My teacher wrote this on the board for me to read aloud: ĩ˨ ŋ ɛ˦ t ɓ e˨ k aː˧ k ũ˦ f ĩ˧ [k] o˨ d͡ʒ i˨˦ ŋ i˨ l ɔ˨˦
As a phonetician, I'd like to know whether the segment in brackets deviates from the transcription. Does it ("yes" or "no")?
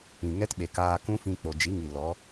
yes